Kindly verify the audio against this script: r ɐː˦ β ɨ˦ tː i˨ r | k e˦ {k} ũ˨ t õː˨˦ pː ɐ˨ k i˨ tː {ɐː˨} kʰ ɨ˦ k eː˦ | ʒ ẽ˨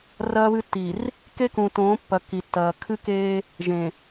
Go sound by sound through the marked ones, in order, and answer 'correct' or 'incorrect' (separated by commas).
correct, correct